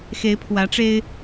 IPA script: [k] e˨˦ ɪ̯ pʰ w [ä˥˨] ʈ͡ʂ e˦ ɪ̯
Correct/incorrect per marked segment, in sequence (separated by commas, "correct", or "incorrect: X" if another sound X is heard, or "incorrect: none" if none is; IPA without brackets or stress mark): incorrect: x, incorrect: ä˨˦